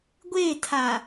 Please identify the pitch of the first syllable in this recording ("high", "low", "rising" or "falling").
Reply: falling